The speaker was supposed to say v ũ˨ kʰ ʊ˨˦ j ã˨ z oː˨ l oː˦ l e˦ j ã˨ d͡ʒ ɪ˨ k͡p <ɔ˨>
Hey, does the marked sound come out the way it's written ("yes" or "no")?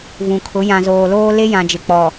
yes